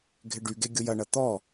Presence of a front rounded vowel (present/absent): present